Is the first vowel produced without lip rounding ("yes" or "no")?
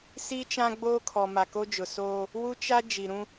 yes